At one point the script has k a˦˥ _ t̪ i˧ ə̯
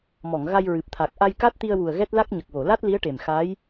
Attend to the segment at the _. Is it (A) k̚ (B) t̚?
B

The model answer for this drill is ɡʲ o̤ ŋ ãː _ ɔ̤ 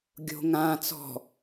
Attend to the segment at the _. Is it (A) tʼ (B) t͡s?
B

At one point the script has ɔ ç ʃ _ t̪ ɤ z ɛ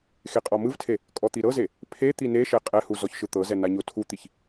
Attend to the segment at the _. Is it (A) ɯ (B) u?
A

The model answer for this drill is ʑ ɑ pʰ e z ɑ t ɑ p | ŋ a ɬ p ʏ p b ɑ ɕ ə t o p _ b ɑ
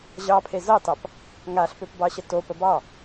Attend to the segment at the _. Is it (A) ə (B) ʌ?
A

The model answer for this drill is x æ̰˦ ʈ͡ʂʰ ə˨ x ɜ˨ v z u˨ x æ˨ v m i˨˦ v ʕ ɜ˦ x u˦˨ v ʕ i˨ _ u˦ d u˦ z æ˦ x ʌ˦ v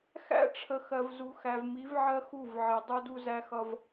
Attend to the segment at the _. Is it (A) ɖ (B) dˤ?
B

